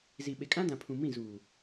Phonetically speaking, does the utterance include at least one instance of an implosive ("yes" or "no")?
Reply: yes